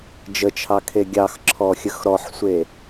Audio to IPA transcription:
d͡ʒ ə t͡ʃʰ ɑ kʰ e ɡʲ ɑ x ǁʰ ɔ xʲ ə x ɾ ɔ ħ sʷ e

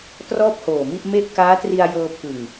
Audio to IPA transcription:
t r ɔː˥˩ p̚ h oː˨˩ m i˥˩ ʔ m e˥˩ ʔ k aː˦˥ t r i˧ a̯ j ɤː˧ pʰ ɯ˨˩ ŋ

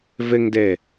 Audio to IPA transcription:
v ɪ ŋ d e

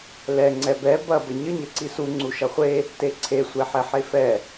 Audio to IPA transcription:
l ɛ ŋ͡ǀ ɛ b ɛ b ɐ b ə ɲ ə ɲ ə ǀ i s u ŋ͡ǀ u ʃ ɐ χʷ e | t e ǀʰ e sʷ e ħ ɛ ħ e f ɛ

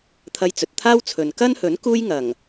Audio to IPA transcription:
t̪ʰ ɐ˧ j t͡s ɵ˨ t̚ t̪ʰ aː˥ w t͡sʰ ɵ˨ n k ɐ˥ n h ɵ˨˥ n k uː˥ j ŋ ɐ˨˩ ŋ

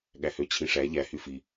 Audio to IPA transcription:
ɠ æ h ø t͡ɕʰ ĩ ʂ æ ʎ æ h y f i

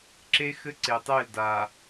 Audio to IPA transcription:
ǁ e˦ x ɘ˦ ǀ e˨ tˤ e˦˨ l d a˨

